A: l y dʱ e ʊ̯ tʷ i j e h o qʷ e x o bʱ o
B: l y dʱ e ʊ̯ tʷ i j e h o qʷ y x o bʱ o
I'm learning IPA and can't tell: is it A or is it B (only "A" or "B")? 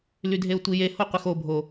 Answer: A